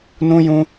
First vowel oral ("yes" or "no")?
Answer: no